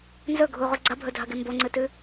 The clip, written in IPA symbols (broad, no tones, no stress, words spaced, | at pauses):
nzɵɡʱuʁu ɡ͡ǀɐbʱɵdʱɐɡe mboŋ͡ǀɨtʉ